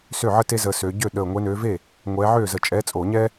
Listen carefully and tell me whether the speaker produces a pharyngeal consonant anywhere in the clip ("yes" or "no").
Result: yes